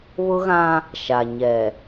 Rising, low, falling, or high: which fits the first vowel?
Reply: high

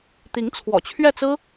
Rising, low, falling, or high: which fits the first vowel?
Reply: rising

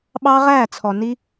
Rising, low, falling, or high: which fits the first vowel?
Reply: high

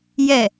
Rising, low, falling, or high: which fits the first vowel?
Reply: falling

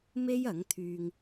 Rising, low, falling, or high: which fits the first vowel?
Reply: high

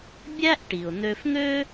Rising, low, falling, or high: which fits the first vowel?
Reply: high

